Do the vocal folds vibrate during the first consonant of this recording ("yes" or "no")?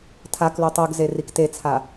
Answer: no